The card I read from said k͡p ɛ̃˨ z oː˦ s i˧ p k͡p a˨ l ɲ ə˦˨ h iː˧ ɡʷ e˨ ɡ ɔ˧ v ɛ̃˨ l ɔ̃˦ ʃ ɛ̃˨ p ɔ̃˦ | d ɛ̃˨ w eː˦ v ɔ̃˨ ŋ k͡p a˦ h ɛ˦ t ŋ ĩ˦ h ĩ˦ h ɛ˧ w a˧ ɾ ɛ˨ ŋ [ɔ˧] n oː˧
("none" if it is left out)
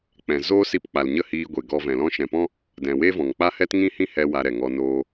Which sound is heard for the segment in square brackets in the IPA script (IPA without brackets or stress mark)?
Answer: ɔ˧